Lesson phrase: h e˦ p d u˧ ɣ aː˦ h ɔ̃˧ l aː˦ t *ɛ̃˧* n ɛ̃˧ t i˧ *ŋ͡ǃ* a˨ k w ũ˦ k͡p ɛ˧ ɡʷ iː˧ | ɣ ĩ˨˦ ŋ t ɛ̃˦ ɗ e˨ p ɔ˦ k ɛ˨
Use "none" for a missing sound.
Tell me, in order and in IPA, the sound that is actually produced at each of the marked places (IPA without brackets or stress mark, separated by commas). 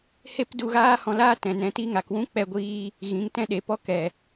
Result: ɛ̃˨, ŋ